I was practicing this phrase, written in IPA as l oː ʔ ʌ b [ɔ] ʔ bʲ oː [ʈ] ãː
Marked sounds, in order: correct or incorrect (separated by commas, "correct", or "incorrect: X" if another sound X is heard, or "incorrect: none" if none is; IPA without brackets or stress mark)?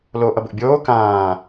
incorrect: ʊ, incorrect: k